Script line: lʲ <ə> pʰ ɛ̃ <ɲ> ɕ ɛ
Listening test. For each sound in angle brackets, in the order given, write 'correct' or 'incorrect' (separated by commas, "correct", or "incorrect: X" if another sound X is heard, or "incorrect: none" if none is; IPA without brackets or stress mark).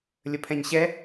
correct, correct